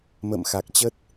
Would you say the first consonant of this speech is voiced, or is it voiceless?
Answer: voiced